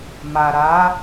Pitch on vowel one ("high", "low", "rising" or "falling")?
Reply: low